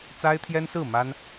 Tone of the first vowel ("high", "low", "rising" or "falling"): high